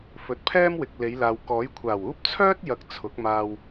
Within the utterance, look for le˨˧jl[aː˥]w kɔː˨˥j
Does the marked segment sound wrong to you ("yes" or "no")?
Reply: yes